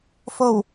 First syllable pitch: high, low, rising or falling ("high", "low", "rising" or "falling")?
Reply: low